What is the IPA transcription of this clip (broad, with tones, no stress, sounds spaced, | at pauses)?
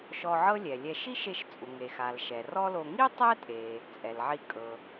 ʃ ɔ˧ ʕ ɤ˥ lʲ ɛ˩ lʲ ɛ˧ ʃ i˥ ʃ e˧ ʃ t͡sʼ u˩ ŋ e˩ x a˩ l ʃ ɛ˩ r ɔ˥ l o˧ ŋ i˥ tˤ ɛ˥ tʼ e˩ | t͡sʼ ɛ˩ l ʕ i˧ kʼ ɤ˩